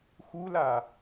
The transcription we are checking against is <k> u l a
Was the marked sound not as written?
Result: yes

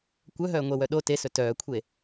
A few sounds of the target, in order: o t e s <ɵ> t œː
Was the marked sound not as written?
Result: no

